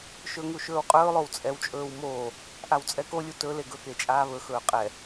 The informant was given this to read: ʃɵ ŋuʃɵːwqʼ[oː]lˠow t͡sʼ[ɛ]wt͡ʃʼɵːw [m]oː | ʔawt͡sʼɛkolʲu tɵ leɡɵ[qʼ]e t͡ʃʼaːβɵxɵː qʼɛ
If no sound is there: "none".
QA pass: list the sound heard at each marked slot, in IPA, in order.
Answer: ɵː, ɛ, m, k

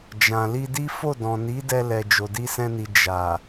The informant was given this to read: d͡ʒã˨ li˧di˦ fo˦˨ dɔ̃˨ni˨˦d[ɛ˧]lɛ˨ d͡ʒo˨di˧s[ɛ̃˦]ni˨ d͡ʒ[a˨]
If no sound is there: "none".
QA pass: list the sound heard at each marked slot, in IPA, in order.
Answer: ɛ˧, ɛ̃˧, a˨

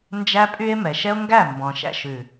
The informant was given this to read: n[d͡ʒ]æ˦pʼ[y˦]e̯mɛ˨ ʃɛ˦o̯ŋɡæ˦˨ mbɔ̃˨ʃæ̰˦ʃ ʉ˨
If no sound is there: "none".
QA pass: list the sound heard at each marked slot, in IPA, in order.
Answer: d͡ʒ, y˦

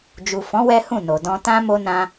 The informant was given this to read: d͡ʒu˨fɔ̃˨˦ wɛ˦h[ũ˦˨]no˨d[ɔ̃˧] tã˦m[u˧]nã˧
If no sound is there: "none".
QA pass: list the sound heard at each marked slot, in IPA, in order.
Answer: ũ˦˨, ɔ̃˧, o˧

